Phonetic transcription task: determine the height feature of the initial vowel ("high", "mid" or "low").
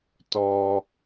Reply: mid